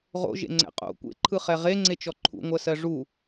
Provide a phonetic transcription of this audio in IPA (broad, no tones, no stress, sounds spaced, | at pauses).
ʁ o̰ ʒ ḛ ŋ͡ǀ ɛ̰ qʼ o̰ kʷ ḛ ǃʰ ɯ χ ɛ ʁ e ŋ͡ǀ e t͡ʃ ɔ ǃʰ ṵ ŋʷ ɜ s ɜ ʐ u